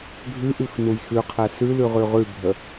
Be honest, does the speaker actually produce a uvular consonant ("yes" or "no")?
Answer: yes